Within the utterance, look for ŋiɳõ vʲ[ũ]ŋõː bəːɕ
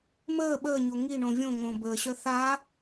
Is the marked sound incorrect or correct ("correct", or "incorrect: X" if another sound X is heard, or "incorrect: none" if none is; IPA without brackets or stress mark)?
incorrect: õ